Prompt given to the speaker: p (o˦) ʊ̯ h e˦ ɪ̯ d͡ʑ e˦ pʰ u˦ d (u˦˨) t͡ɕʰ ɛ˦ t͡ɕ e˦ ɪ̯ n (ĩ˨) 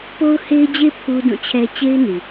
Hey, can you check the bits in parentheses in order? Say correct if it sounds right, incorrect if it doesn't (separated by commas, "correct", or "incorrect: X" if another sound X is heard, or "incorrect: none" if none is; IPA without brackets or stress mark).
correct, incorrect: ũ˦˨, incorrect: i˨